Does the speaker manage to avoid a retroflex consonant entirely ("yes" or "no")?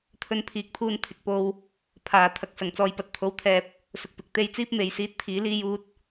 yes